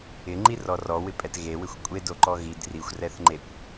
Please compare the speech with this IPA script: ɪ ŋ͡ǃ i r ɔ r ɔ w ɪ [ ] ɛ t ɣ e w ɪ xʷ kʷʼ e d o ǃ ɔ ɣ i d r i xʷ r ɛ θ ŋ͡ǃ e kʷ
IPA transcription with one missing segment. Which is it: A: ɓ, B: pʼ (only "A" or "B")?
B